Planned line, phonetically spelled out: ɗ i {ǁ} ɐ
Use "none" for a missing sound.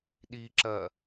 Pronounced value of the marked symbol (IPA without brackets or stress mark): ǁ